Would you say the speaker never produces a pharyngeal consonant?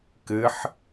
no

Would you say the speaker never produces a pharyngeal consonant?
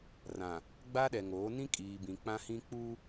yes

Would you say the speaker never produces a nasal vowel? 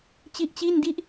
yes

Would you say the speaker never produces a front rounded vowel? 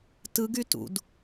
no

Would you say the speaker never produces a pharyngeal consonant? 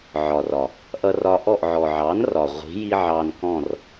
no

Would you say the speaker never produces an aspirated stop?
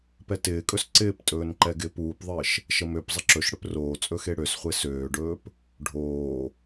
yes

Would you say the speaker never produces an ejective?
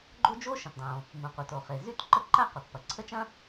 yes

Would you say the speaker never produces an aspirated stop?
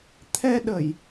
no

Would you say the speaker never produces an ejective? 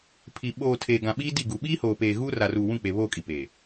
no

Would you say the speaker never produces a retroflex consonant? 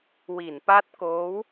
yes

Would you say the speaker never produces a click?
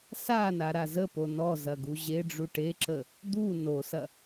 no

